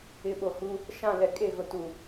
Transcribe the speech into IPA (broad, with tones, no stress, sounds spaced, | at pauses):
ɪ˨˦ ɓ o˨ h u˦ | ʃ ã˦˨ l ɛ˨ kʼ eː˦˨ ɣ ʊ˨ t u˨